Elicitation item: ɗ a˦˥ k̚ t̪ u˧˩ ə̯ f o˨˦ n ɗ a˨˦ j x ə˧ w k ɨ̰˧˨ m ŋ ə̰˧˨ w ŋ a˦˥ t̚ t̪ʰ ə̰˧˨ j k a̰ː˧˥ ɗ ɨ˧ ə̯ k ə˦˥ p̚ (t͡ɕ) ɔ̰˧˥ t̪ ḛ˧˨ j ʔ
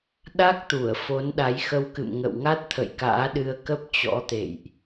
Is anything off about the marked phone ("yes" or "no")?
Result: no